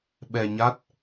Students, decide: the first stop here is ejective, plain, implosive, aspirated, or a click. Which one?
implosive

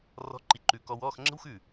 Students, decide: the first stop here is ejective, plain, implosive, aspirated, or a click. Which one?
click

